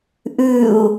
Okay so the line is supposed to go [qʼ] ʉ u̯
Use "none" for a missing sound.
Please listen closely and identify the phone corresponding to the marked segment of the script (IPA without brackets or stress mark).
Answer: ʔ